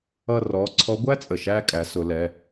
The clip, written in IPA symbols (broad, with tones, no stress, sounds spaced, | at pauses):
ʌ˦˨ r ɔ˩˧˩ ǀʰ ɔ˧˥ ɡʷ æ˥ t͡sʼ ə˩ ʃ æ˦˨ kʼ æ˩˧ s ʊ˩˧ l ɛ˩˧˩